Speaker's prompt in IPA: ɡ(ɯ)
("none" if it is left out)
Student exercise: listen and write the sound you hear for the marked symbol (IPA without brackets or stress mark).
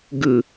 ɯ